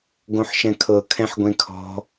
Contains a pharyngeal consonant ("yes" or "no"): yes